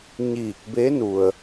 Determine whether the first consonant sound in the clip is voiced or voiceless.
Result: voiced